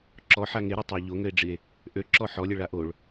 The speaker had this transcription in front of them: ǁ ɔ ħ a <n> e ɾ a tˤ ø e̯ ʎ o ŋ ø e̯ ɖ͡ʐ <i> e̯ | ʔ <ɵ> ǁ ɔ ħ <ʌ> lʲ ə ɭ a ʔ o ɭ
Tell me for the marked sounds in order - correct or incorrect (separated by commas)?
incorrect, correct, incorrect, incorrect